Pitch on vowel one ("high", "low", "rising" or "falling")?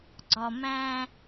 low